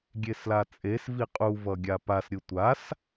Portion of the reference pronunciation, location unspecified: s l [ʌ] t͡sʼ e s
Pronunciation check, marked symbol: incorrect: a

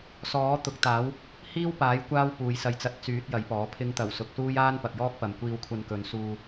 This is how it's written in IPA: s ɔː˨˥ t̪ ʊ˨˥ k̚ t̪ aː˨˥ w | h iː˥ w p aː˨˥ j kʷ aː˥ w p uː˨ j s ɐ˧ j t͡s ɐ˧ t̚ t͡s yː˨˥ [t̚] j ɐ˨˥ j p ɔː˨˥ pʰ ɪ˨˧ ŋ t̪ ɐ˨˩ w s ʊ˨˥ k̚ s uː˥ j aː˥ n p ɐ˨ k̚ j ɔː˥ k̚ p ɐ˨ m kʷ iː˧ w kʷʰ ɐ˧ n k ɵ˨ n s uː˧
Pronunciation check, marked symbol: correct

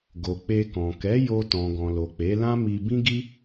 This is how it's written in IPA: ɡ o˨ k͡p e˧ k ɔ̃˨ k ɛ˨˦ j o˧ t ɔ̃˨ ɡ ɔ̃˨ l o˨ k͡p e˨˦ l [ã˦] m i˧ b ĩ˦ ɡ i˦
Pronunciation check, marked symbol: correct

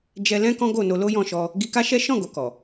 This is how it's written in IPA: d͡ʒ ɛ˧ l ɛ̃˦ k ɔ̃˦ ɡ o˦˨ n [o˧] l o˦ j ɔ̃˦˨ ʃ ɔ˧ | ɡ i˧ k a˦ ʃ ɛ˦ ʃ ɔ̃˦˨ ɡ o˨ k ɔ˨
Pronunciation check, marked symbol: correct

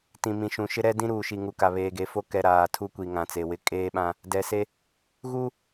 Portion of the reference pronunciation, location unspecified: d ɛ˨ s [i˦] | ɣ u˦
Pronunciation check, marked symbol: incorrect: e˦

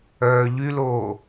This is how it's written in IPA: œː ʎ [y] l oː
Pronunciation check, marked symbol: correct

